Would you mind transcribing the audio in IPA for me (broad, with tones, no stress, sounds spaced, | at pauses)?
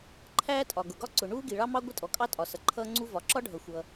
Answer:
ǃʰ æː˥ tʼ ɒ˩ ɡ ʊ˩ ɡ ɒ˥ ǀ ʊ˩ ɳ uː˥ ɡ i˩ ɭ ɑ˥ m ɑ˥ ɡʷ ɪ˥ tʼ ɔ˩ kʼ ɑ˥ tʼ ɒ˩ s ʌ˩ ǃʰ ʌː˥ ŋ͡ǀ u˥ v ɒ˩ ǁ ɒ˥ ɖʱ ʌ˩ xʷ ʌː˩